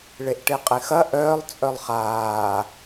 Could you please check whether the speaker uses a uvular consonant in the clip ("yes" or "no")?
yes